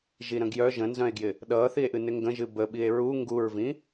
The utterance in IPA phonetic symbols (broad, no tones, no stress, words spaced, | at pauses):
ʒiɾə̃ɡjœ ʒə̃nzœ̃e̯ɡjɪ | ɗʌːθie̯ʔɨnɪ ŋɡə̃ʒɨ bəɓie̯ ɹu ŋɡuɹvĩ